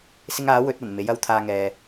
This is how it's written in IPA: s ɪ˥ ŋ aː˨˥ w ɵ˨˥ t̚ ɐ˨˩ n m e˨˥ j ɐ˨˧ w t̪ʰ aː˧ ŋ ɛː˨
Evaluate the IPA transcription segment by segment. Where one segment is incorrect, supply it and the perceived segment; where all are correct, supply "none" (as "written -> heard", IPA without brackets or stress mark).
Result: none